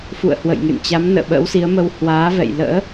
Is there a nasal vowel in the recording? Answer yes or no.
no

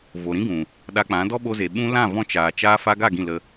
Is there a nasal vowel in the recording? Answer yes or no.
yes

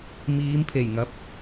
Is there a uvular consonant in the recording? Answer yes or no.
no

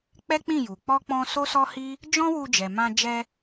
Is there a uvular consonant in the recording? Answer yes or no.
no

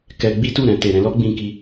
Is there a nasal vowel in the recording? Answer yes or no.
yes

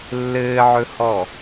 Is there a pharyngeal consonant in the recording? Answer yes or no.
yes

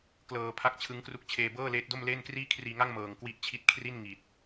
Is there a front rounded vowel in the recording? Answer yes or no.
no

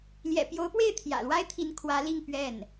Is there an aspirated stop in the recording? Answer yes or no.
yes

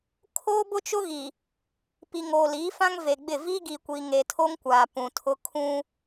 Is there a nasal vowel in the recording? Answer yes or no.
yes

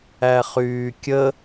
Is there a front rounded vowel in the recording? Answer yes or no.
yes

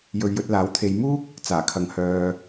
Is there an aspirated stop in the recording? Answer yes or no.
yes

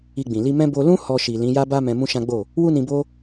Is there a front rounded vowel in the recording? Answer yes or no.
no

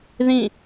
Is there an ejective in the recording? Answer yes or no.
no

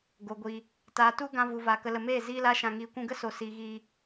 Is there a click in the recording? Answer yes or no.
no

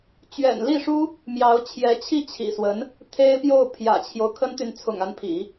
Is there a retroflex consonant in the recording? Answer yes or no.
yes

